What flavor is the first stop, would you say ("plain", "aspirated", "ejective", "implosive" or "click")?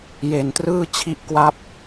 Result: plain